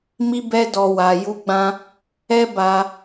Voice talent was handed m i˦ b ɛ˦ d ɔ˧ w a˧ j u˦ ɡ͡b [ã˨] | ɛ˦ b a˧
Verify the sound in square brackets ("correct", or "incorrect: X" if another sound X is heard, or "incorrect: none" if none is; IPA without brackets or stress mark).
incorrect: ã˦